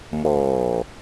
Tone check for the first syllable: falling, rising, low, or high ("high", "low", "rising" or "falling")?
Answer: low